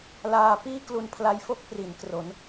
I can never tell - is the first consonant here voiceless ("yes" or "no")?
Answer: no